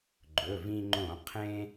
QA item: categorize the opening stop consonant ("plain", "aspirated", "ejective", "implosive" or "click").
click